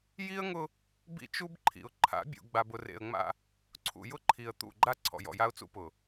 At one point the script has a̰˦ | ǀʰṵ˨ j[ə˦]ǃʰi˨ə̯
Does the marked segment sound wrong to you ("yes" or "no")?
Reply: yes